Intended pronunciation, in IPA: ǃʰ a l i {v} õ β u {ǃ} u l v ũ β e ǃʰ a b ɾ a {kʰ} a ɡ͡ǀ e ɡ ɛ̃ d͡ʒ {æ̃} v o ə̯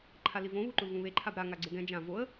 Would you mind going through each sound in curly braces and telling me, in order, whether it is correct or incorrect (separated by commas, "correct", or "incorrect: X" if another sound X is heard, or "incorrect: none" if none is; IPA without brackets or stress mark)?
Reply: correct, correct, incorrect: ŋ, incorrect: ã